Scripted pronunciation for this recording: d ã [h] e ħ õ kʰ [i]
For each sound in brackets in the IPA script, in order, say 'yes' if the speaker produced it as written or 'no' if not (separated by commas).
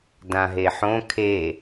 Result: no, no